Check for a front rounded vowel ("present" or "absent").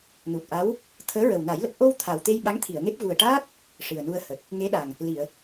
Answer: absent